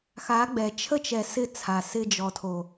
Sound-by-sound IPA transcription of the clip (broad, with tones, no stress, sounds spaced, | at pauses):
x a˨˦ ɡ͡b ɛ˨ t͡ʃʰ ə˦ t͡ʃ ɛ˨ s ɪ˦˨ t͡sʰ a˨ s ɪ˧ d͡ʒ ɔ˨ tʰ o˨